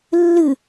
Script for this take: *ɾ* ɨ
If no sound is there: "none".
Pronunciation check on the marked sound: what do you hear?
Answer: lː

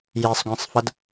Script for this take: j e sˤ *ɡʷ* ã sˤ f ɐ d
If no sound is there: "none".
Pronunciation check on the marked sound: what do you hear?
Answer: ɡʷ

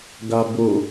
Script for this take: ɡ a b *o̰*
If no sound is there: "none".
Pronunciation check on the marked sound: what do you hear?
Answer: o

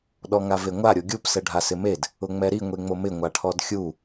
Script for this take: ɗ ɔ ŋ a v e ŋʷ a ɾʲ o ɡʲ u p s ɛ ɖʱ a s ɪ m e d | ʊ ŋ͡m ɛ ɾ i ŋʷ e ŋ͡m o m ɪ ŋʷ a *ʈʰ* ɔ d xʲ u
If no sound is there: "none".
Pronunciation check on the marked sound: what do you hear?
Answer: ʈʰ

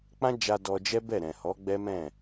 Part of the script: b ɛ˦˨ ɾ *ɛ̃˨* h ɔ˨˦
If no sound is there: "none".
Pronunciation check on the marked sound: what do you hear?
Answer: ɛ̃˨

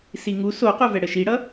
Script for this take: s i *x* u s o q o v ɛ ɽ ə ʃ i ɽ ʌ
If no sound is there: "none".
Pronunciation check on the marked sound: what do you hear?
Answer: ŋ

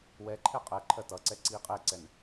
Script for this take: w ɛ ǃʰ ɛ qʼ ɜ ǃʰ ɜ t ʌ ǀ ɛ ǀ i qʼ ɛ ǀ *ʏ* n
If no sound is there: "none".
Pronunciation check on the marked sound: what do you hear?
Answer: ɛ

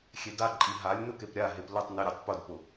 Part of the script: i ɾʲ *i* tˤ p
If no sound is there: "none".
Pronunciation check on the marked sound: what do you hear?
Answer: e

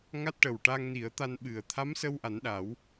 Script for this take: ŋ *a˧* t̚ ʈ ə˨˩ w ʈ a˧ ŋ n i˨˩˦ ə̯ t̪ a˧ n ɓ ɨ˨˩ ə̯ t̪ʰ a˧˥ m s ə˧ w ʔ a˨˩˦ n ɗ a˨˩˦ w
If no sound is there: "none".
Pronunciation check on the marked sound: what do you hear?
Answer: a˦˥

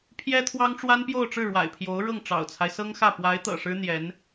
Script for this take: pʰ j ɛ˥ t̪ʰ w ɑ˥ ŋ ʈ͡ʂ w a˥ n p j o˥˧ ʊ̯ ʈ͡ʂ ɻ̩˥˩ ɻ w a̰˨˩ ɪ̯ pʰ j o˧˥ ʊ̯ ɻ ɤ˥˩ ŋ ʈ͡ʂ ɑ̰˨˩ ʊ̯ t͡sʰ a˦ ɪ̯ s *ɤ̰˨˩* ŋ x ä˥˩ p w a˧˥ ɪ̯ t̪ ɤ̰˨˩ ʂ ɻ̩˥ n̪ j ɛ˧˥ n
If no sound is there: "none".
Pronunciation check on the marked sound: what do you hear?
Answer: ɤ˥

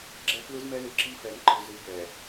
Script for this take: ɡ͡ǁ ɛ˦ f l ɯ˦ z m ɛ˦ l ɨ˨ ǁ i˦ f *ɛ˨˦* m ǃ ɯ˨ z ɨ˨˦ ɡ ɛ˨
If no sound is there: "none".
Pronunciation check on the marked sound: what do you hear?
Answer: ɛ˨˦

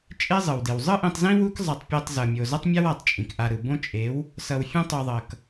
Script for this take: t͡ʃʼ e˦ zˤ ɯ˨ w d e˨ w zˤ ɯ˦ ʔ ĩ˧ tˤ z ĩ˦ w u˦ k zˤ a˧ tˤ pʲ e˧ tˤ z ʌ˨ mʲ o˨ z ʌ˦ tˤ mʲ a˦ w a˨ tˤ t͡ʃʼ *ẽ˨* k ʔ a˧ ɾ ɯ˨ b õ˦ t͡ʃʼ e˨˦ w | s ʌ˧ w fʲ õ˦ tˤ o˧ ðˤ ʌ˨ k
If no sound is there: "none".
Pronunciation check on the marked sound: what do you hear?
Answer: ĩ˨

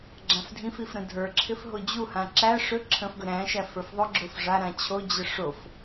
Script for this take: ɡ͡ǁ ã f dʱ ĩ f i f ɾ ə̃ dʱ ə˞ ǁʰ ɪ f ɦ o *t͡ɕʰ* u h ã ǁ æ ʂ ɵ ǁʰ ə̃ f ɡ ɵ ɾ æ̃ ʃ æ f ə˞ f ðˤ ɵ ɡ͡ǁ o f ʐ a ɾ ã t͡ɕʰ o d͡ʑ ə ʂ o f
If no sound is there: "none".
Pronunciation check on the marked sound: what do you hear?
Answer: d͡ʑ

